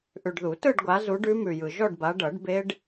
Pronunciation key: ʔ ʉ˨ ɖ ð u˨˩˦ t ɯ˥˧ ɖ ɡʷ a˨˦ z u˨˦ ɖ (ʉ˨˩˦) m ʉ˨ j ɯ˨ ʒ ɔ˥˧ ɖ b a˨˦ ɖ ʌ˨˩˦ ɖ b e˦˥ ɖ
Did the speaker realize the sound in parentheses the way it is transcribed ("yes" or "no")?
no